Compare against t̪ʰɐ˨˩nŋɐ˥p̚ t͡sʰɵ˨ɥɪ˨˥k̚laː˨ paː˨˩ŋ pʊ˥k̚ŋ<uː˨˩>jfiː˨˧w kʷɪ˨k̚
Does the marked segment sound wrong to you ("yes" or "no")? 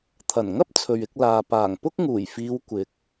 no